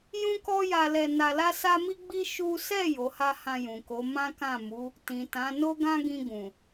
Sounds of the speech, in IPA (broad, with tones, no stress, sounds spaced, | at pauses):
j ũ˦ k ɔ˦ j a˧ l ɛ˧ n a˧ l a˦ s a˦ m i˦ ɡ͡b i˦ ʃ u˦ s ɛ˦˨ j o˨˦ h a˦ h ã˧ j ũ˨ k o˨˦ m ã˦ k ã˦˨ m u˨˦ | t ĩ˨ t ã˨˦ n o˦ ɡ ã˦ ɡ ĩ˧ ɡ ũ˨